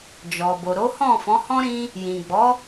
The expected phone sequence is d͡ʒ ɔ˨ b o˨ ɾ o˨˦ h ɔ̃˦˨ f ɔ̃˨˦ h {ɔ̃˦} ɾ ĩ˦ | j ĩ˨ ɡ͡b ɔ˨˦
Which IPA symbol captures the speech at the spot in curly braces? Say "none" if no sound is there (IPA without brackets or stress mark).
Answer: ɔ̃˦